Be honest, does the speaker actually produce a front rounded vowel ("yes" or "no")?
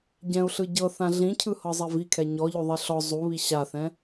no